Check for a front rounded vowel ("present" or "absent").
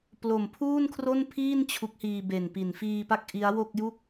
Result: absent